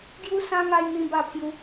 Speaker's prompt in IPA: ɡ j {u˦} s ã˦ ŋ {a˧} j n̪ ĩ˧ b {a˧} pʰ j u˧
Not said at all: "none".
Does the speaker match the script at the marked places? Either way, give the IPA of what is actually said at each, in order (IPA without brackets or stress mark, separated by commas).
u˦, a˧, a˧